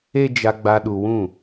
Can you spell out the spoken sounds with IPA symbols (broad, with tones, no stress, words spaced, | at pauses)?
e˦ d͡ʒa˧ɡ͡ba˧ ɗu˧wũ˦˨